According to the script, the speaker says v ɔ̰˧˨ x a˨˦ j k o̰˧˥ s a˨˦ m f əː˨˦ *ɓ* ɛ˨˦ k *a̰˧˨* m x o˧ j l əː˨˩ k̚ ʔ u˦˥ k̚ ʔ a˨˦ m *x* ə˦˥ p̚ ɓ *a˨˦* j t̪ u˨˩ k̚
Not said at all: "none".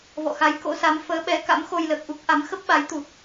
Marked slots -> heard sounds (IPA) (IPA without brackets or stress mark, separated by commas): ɓ, a̰˧˥, x, a˨˦